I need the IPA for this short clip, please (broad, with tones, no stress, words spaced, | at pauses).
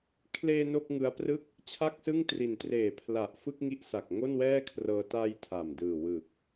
kʰleː˧ no˥˩k̚ŋɯ˦˥a̯prɯ˥˩k̚ | t͡ɕʰa˥˩k̚sɯ˥˩ŋtri˨˩n treː˨˩pʰla˨˩ʔ fɯ˥˩k̚ŋi˦˥ʔsa˨˩k̚ ŋo˥˩nwɛː˥˩kʰrɤː˧ ta˧j tʰa˨˩mdɯː˨˩wɯ˨˩k̚